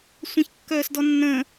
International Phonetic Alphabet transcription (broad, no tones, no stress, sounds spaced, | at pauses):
sʷ ɐ̃ ç kː œː s d ɔ nː ə̃